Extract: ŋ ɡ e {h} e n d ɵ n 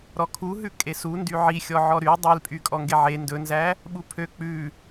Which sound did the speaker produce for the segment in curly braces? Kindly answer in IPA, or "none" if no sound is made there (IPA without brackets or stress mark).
ʕ